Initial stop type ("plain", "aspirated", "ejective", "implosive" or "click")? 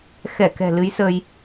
plain